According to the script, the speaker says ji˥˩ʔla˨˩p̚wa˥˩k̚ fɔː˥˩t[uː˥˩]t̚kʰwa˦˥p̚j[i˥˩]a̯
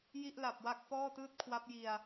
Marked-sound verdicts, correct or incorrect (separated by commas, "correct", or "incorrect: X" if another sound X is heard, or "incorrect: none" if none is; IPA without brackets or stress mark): incorrect: ɯː˥˩, incorrect: i˧